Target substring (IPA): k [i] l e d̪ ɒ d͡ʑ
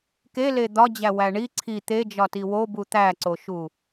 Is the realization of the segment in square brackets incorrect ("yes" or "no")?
yes